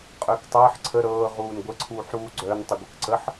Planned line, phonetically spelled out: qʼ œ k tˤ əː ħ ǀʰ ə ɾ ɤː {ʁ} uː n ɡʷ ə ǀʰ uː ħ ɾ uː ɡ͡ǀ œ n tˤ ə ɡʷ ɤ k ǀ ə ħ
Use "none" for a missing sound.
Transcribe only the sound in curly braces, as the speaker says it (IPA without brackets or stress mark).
ʁ